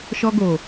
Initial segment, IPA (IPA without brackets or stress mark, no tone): ʃ